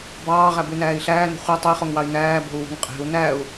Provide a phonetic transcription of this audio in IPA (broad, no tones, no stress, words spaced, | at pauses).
bɑːʁæbynæːi̯ ɬæːno̤ χʷæ tˤɵi̯χoŋwɑi̯ næːbo̤u̯wo̤ŋ qʼe̤u̯ næu̯